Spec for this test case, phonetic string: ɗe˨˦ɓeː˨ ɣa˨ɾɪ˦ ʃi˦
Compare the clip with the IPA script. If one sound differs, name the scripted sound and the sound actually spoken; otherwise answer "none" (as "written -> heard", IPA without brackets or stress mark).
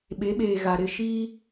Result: ɗ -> ɓ